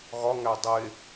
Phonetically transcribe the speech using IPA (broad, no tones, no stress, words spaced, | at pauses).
ɣɒŋæ dˤe